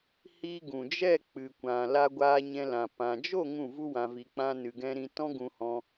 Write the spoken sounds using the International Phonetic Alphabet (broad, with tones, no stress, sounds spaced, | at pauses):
h i˧ ɡ ũ˨ d͡ʒ ɛ˦˨ k͡p ɨ˨ kʷ ã˨ l a˧ ɡʷ aː˧ ɲ ɛ̃˧ l ã˨ p ã˨ d͡ʒ o˦˨ ŋ ũ˦˨ v u˦ w ã˧ v i˧ k͡p ã˦ n ɨ˧ ɡ ɛ̃˦ ɾ ĩ˦ t ɔ̃˦ ɡ ũ˧ h ɔ̃˧